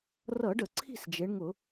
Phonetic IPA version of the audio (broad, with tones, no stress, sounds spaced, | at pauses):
r ʌ˧˩˧ ɖ ə˧˩˧ ǀʰ i̤˥˨ s d͡ʒ e˩˧ ɳ ŋ ʊ˧˩˧